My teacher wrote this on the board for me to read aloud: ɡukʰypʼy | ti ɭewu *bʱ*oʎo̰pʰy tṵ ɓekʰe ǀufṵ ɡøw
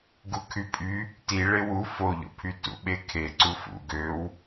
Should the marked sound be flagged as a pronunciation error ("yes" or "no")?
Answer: yes